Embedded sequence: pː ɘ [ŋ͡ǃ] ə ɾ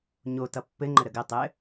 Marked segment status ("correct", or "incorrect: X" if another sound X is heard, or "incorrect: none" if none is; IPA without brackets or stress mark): correct